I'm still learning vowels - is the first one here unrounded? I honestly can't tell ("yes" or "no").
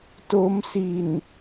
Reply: no